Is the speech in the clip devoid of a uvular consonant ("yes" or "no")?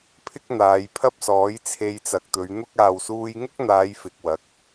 yes